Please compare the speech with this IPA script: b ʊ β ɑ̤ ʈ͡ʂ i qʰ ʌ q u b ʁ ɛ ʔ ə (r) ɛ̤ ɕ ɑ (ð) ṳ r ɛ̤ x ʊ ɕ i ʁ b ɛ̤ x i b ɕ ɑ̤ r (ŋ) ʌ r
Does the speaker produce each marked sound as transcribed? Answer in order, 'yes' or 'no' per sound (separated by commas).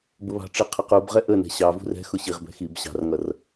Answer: no, no, yes